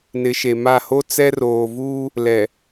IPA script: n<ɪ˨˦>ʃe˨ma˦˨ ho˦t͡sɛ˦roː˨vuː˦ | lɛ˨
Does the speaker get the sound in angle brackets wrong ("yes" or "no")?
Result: no